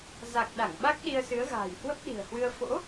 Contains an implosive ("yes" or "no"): yes